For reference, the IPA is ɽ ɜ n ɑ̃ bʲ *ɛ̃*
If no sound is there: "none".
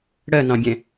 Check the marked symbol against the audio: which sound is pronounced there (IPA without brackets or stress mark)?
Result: ɛ̃